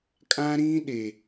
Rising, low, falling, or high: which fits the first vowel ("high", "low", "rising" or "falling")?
high